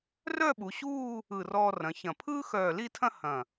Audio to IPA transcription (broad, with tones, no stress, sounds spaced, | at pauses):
r œ˥˧ ɓ u˩˧ ɕ uː˥˧ | ɯ˧˩ r ɔː˧ r ɐ̃˩˧ ç ɐ̃˧˩ pʰ ɯː˥ x œː˧˩ l i˥˧ tʰ ɐ̃˥ h ɐ̃˧˩